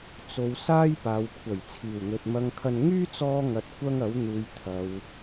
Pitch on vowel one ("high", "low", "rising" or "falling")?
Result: low